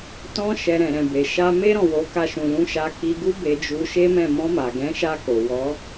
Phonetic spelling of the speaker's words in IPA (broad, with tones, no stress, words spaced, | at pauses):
tɔ̃˧ʃɛ˨ ɾɛ̃˨ɾɛ̃˨be˨ ʃa˧me˦ ɾɔ̃˦˨wo˨˦ka˧ ʃũ˨lũ˧ʃa˧ ki˧ɡu˦be˧d͡ʒu˧ ʃe˦mɛ̃˦˨ mɔ̃˧ma˨ɡɛ̃˨˦ʃa˧ ko˨wɔ˨˦